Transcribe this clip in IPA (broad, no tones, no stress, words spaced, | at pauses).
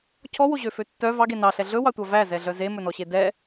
cʰɔwoʑøfø tːœ vɑɡe nɑɬɛ ɮɵwɑtʷɑ væzɛɮœ zemɵnɔɕe dɛ